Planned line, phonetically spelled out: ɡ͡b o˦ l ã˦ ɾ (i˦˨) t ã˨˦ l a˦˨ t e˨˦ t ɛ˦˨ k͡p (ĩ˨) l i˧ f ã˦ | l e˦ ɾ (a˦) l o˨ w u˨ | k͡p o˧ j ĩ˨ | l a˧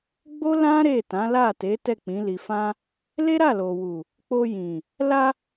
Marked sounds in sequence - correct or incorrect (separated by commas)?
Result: incorrect, incorrect, incorrect